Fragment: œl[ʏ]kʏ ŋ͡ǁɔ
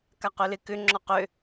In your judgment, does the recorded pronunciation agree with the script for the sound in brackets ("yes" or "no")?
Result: no